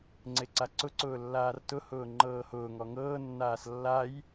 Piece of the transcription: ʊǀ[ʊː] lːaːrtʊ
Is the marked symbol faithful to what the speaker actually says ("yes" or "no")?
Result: yes